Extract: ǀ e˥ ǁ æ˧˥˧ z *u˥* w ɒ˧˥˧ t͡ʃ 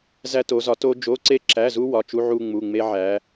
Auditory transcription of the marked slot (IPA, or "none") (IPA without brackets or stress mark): u˥